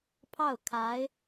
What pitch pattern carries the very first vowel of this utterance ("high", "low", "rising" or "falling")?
falling